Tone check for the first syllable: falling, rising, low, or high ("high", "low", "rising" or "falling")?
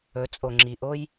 rising